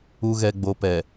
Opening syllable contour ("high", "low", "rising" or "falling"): low